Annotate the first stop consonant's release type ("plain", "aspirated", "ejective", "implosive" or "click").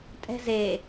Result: ejective